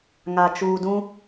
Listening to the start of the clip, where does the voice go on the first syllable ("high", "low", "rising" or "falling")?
low